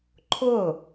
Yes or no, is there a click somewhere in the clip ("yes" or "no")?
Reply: yes